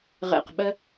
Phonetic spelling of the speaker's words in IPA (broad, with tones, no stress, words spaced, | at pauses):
ʁɛ̰˨˩qɓɜ˧